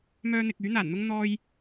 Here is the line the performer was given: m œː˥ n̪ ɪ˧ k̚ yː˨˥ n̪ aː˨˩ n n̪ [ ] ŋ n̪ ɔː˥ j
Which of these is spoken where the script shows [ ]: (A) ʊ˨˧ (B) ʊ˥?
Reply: B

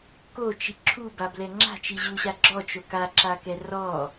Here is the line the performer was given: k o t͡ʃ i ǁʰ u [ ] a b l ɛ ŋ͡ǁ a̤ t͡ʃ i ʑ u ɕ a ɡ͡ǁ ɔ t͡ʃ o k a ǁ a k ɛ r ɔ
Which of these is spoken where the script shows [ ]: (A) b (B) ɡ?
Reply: A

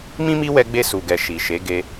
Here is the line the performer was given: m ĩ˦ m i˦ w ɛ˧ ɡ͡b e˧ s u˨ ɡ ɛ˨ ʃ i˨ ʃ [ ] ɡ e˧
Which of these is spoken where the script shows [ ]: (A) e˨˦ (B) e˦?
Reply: A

